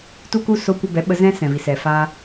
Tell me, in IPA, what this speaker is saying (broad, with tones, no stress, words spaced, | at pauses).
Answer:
tu˧ku˧ so˧kʷə˧bɛ˨˦ ɓə˧zɛ̃˦ sɛ̃˨vi˨sɛ˨ fa˧